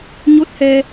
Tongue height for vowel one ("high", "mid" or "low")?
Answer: mid